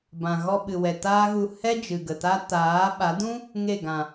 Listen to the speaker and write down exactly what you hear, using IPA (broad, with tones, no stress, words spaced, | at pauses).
bã˨ɣɔ˧ɓɨ˨wɛ˨ taː˦ɣu˧ hɛ˦ d͡ʒɨ˨ ɡə˨ta˦ taː˨˦ɓa˨˦dũ˦ | ŋe˦˨ɡã˨